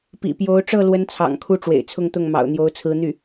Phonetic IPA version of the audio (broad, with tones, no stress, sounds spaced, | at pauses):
p ḭ˨˩ p j o˧˥ ʊ̯ ʈ͡ʂ ɤ˥˩ l w ə˥ n t͡sʰ ɑ̰˨˩ ŋ kʰ u˥ ʈ͡ʂ w ḛ˨˩ ɪ̯ t͡sʰ ʊ˥˧ ŋ t̪ ʊ˥˩ ŋ m ɑ̰˨˩ ʊ̯ n̪ j o˧˥ ʊ̯ t͡sʰ ɹ̩˧˥ n̪ y˥˩